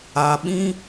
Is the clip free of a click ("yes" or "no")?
yes